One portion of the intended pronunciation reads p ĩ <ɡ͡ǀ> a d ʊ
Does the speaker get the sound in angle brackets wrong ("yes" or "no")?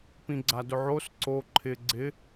no